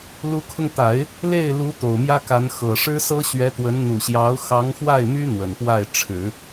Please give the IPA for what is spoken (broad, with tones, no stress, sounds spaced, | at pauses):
l u˧˥ kʰ ʊ˧ ŋ t̪ a˨˩˦ ɪ̯ | l e˥˩ ɪ̯ l u˧˥ t̪ o˨˩ ʊ̯ m j ä˥ k a˧˥ n x ɤ˨˩ ʂ ɻ̩˥ s ɤ˥ ɕ ɥ ɛ˧˥ t̪ w ə˧˥ n n̪ u˨˩ ɕ j ɑ˧˥ ʊ̯ x ɑ˧˥ ŋ x w a˥˩ ɪ̯ m y˥ n̪ w ə˨˩ n p w a˥˩ ɪ̯ ʈ͡ʂʰ ɻ̩˨˩˦